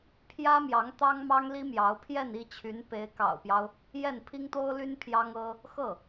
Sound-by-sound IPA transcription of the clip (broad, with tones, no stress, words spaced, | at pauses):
pʰjä˥mjɑ˧˥ŋ t̪ɑ˥ŋ mɑ˥ŋli˥mjɑ˧˥ʊ̯ pʰjɛ˥˧ni˥˩t͡ɕʰy˧˥n pe˧˥ɪ̯kɑ̰˨˩ʊ̯pjɑ˦ʊ̯ | jɛ˥˩npʰi˥ŋt̪o˥ʊ̯ly˥n pʰjɑ˥ŋɤ˥ | xɤ˥˩